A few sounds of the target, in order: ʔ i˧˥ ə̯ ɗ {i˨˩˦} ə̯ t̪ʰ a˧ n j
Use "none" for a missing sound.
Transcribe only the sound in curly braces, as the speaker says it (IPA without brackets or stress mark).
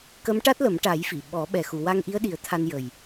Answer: i˨˩˦